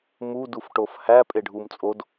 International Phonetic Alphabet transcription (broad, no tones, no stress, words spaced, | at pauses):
mudufʈof hæpʼeɖʱum t͡sʼod